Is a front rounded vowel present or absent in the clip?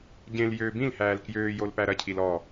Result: present